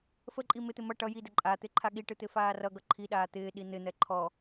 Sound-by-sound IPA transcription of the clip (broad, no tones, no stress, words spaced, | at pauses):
fəǃʼi mɪt̪ɪ mʌ ʈʌ jidə ǃʼa t̪ɪǃʰaɠiʈɨ t̪ɪfaːrʌɡʌ ǃʰiɗaː t̪ɪːɗi n̪ɪn̪ɛ ǃʰɔ